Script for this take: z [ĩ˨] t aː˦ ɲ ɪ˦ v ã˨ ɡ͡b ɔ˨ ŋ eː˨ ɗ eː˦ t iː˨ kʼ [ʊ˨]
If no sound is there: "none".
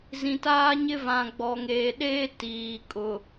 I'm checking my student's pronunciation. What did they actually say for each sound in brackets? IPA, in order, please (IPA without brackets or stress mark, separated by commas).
ĩ˨, ʊ˨